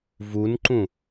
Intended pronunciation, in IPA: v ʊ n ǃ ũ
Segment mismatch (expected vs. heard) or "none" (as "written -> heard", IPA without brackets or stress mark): ʊ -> u